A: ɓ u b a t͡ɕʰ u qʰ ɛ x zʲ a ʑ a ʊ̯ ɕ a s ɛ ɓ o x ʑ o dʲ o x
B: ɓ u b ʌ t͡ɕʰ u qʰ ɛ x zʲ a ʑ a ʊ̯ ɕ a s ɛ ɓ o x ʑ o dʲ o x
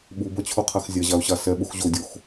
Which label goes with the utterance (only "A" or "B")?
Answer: B